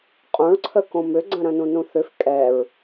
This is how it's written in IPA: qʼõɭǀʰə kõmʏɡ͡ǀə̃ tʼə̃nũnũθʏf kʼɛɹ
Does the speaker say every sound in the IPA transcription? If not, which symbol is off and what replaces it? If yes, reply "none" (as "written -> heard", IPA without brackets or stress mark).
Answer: tʼ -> ɾ